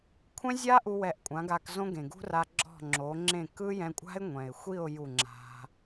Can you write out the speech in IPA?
kʷʰ ɛ̃˦ zʲ a˦ ʔ u˧ w ɛ˧ ʔ kʷʼ ã˨˦ ɡ a˧ k z õ˦ ɡ ẽ˨ ɡ ṳ˦ r a˧ ɡ͡ǁ ɔ̤˦˨ ŋ͡ǁ o˨˦ ŋ͡ǁ ẽ˦˨ k ɯ˦ j ɛ̃˧ kʷʼ a̤˦ ɪ̯ ŋʷ ɛ̃˨ ɪ̯ xʷ i˦˨ ʊ̯ j u˦˨ ŋ͡ǁ a̤˦

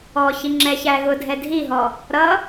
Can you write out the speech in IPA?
ɔ ç i ŋ͡ǁ ɛ ç æ ɣ ʊ dʱ ɛ dʱ i ɦ ɔ | ɾ ʌ

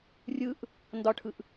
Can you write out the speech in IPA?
rʲ ɯ ʔ | n d ɒ ʈʰ ɯ ʔ

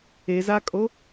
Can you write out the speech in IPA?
e z a kʼ o

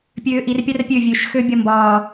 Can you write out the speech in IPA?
pʲ øː ʔ i r pʲ a r pʲ ø vʲ ø ʃ x ø bʲ ɒ m b ɒː

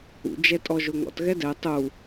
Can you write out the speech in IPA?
ṵ d͡ʒ ɛ tʼ ɔ ʒ o ŋ ɔ̰ t ɣ ɛ d ɛ tˤ u

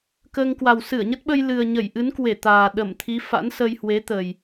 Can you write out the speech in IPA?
k əː˧ ŋ k w a˨˩ w s ɨ˧˩ ə̯ ɲ ə˦˥ t̚ ɓ ə˧ j l ɨ˨˩ ə̯ ɲ ə˧˩ j ʔ ɨ˨˦ n k w e˧˩ t̪ aː˨˩ ɗ ə˧˩ m t̪ʰ i˨˦ f a̰˧˥ n s ə˧ j h w e˨˦ t̪ ə˨˩ j

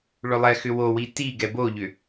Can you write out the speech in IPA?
ɭ ʏ lˠ ɛ x ʏ w o w i t i ɡ ɛ b o ʎ ʏ

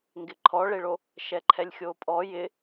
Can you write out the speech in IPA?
ŋ ɡ ɪ ǃʰ ɔ ɭ e ɭ o | ʃ ɛ ǃʰ ɛ lʲ xʲ o pʼ ɔ j ɪ

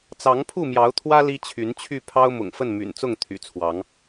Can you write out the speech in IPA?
t͡s ɑ˨˦ ŋ pʰ u˥˨ m j ɑ˨˦ ʊ̯ t̪ʰ w ä˦ l i˦ t͡ɕʰ y˨˦ n t͡ɕʰ y˥˨ pʰ ɑ˦ ʊ̯ m ʊ̰˨˩ ŋ f ə˥˨ n m y̰˨˩ n t͡s ʊ˥˨ ŋ t̪ʰ y̰˨˩ t͡sʰ w ɑ˨˦ ŋ

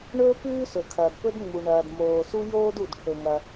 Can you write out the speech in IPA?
ɳ ɵː˥ p ʉː˥ s ɵ˩ kʰ ɐː˩ d p ɵ˥ d ŋ͡m u˩ ɳ ɐː˩ d m oː˩ s u˥ j oː˥ d u˩ d ʈʰ ɵ˩ ŋ ɐ˩

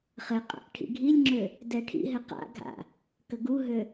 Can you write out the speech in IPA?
χ ɘ qʼ a̰ ʔ ʈʰ ḭ ɡʱ i lʲ ŋ͡ǁ ø | d ɛ ʈʰ ḭ ɦ ɘ q a̰ ɡʱ a̰ | k ə ɡ u ɦ ø

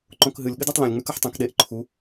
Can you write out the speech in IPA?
ǃ õ k ɦ ɨ lʲ ɠ ɨ d a tˤ l õ lʲ ŋ͡m ʉ k ɐ ħ tˤ ẽ k ɗ e ʔ ǃʰ u

